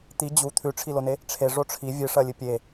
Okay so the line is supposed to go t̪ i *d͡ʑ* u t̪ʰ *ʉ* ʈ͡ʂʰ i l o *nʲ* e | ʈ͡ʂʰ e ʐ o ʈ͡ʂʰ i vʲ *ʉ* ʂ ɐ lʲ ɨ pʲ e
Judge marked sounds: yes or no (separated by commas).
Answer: yes, yes, no, no